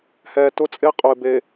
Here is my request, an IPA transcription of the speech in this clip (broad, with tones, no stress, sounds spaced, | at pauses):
h ɛː˨ t ʊ˦ t͡sʼ e˦ qʼ ʊ˨ ɪ̯ b e˨